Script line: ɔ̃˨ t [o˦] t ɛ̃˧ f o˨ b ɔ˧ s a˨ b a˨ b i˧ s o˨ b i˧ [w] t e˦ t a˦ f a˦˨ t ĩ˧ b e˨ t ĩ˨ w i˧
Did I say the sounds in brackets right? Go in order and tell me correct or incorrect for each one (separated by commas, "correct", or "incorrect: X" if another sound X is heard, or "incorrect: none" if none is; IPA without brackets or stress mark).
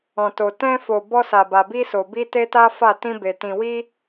incorrect: o˨, incorrect: none